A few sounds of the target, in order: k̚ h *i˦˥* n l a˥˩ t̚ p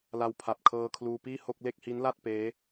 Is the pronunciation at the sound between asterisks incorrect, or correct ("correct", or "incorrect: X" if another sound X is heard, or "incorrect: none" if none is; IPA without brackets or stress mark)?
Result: correct